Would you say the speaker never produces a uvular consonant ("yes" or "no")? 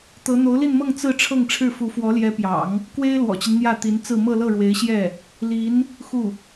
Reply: yes